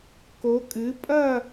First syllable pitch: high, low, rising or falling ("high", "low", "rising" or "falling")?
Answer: rising